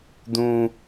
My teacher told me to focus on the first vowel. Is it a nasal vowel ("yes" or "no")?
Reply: yes